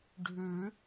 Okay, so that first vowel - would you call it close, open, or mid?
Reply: close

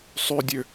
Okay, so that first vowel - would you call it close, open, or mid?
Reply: close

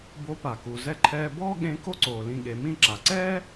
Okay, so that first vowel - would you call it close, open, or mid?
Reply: mid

